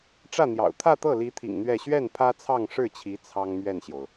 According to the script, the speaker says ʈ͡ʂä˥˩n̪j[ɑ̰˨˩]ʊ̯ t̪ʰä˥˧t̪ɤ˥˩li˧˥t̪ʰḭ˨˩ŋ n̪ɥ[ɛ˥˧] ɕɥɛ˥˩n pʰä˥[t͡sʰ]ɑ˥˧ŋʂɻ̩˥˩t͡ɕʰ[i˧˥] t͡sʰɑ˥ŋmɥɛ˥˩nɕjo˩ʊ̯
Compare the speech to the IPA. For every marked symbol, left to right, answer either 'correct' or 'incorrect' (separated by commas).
correct, correct, correct, correct